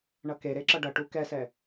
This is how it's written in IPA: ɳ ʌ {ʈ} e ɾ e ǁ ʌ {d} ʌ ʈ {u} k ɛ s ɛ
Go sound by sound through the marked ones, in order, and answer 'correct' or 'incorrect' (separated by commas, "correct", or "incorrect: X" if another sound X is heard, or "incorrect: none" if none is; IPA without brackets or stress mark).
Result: incorrect: k, incorrect: ɖ, correct